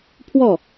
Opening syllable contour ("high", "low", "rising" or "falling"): falling